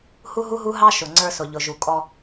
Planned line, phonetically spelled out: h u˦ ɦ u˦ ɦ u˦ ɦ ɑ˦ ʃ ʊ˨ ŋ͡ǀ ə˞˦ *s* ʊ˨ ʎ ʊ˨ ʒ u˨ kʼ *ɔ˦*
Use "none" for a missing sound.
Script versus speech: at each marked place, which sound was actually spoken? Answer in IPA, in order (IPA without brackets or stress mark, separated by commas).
s, ɔ˦